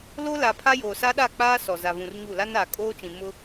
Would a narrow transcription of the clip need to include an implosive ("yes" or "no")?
yes